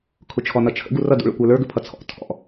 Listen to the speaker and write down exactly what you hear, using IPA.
kʰ ʊ t͡ʃʰ ɔ n ʌ t͡ʃʰ ə̰ ɡ u r ʌ d ṵ ɭ ə̰ kʷ ə˞ l ə˞ ɡ ə pʰ ʌ t͡sʰ ɔ̰ tʰ ɔ̰

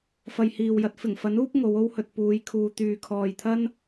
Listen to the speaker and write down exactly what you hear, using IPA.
f ɐ˨ j h iː˨ w j ɐ˧ t̚ f ɪ˨˩ ŋ f ɐ˨˥ n uː˥ p̚ ŋ o˨˧ w o˥ w h ɵ˨ t̚ p uː˨˧ j kʰ uː˨ t̪ yː˨ kʰ ɔː˨ j t̪ʰ ɐ˥ n

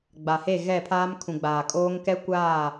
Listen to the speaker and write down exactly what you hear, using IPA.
ɡ͡b a˨ h e˦˨ ɣ ɛ˦˨ pʰ aː˦ m kʰ ũ˨ ɡ͡b aː˨ kʼ oː˦ ŋ k ɛ˦ kʷ aː˦˨

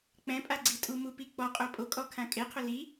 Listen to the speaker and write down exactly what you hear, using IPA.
k͡p ɛ̃ pʼ a ɡ͡ǀ i tʼ u m u p i k͡p ɔ qʼ o pʼ o kʼ ɔ kʰ ã kʼ e qʰ ʊ l i

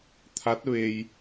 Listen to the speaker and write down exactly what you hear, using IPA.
t̪ʰ a˧˥ t̚ ʋ e˧ j

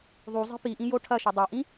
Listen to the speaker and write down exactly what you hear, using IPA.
ðˤ u zˤ i̤ p i ʔ ĩ j o ʈʰ ɐ ʃ ɵ dˤ a ʔ ĩ

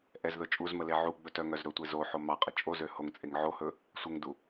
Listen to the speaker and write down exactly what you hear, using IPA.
ʔ ɛ z ð ɵ t͡ʃʼ u z m ə l e ʕ u ɡ͡b ɵ t œ ŋ œ z ɾ ɵ tʷ e z o ħ o m ɑ qʼ ə t͡ʃʼ o z ø h o ŋ t͡sʼ e ŋ ʕ o h ɵ | sʷ ə ŋ d u

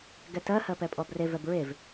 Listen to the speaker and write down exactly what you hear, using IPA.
ɡ ɛ t ɜ h ɜ p ɛ pʼ ɔ b r e v ɛ b ɹ e v

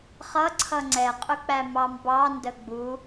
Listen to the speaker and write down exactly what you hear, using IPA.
χ ʌ ǀʰ ʌ ŋ͡ǀ ɛ qʼ ʊ k͡p æ m ɑ m b ɑ n d ə ɡ͡b u

